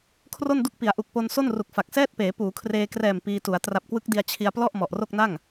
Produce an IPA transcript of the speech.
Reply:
kʰro˥˩ndu˥˩k̚pi˩˦a̯ ʔu˨˩k̚po˧n so˥˩nru˨˩k̚fa˨˩k̚ sɛː˥˩t̚ peː˩˦ puː˩˦kʰreː˧krɛː˨˩m piː˧tu˩˦a̯ tra˨˩p̚kwɯ˦˥k̚di˧a̯ t͡ɕʰi˧a̯plɔ˥˩ʔ mɔ˨˩ʔro˥˩k̚na˥˩ŋ

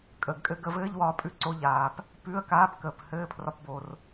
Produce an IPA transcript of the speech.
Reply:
kʼəː˩ɡkʼɘ˧ ɡə˧vɘː˧˥˧ʎwɒː˧ pʼʉ˧ǀo˧ʎaː˩p | pʉ˧˥˧ə̯kaː˧˥˧b kəː˩phɘː˧˥˧pʰrɒ˧p bo˩r

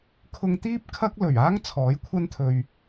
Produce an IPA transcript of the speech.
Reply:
kʰʊ˧ŋt̪iː˥p̚ kʰɐ˥k̚lɵ˨˩ɥ aː˥ŋ t͡sʰɔː˨˥jkʷʰɐ˥nt̪ʰɵ˧ɥ

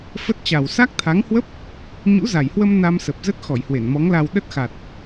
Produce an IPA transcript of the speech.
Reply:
fə˦˥t̚t͡ɕa˨˩w sa˦˥k̚t̪ʰa˨˦ŋhwə˦˥p̚ | ɲṵ˧˥za˨˩jhwə˧m na˧msə˨˩p̚zə˦˥t̚ xɔ˧˩jhwe˧˩nmɔ˨˦ŋla˧w ɗə˦˥t̚xa˨˩t̚

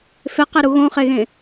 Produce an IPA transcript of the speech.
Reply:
feqeɾu ɣõχeɣẽ

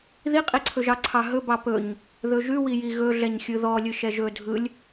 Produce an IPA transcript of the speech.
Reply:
ðiqʼiǀʰɵʒɑ ǀʰɑɦɵbɑ pɵɲ | ðɵʒʉwiji ɣɵɮɛɲ xʲɯðɔ lʲɯʃɛʒɵ dʱɯlʲ

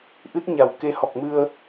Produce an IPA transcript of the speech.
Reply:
ʔɨ˦˥t̚ɲa˨˩w ke˧ hɔ˨˩k̚mɨ˧ə̯

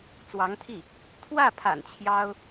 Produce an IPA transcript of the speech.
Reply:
t͡swɑ˧˥ŋt̪ʰi˥˩ | t̪ʰwä˥˩pʰa̰˨˩n t͡ɕʰjɑ˥ʊ̯

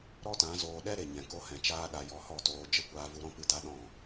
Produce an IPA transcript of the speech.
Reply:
ɾɔ˦tã˨˦zoː˧ ɗɛ˦ ɾe˨ɲɛ̃˨ko˧hɛ̃˨ t͡ʃaː˦ɗa˧ jɔ˧hɔ˦˨toː˧ d͡ʒə˦kʷaː˧vu˧ ɾɔ̃˦pɨ˦˨da˦ ɗɔ̃˦˨

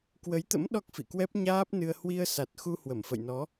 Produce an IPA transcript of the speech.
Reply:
kwə˨˦jt̪ə̰˧˥m ɗɔ˦˥k̚fḭ˧˨kwɛ˦˥p̚ ɲaː˦˥p̚nɨ˧ə̯ hwi˧ə̯sa˨˩t̚xu˧ hwə˧˩mfə̰˧˨jnɔ˨˦

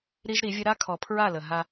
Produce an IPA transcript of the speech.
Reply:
ɾi˦ʒɾi˨˦vʲə˦ ɾa˦kʰɔ˨pʰɹa˦˨lə˨ ɦa˦

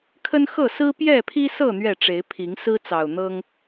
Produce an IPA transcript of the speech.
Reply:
kʰə˦nxɤ˥˨ sɹ̩˦pjɛ˥˨pʰi˦sɤ˥˨ n̪ɥɛ˥˨ʈ͡ʂe˨˦ɪ̯pʰi˨˦ŋ sɹ̩˦t͡sɑ˨˩ʊ̯ n̪ɤ˦ŋ

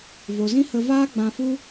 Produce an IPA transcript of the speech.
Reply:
vo˨zĩ˦hə˧vaː˦ ɡ͡bã˧fu˦

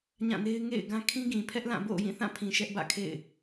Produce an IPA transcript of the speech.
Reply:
ɲã˦˨ne˦ɪ̯ ŋḛ˦˨ɪ̯ɡã˦ kʰĩ˦ɡĩ˨pʰɛ˦ʔlã˦˨ bo̰˦˨ʊ̯jĩ˦˨θã˦˨pʰĩ˨ ʃɛ˦ʔbä̰˦˨kʰḛ˦˨ɪ̯

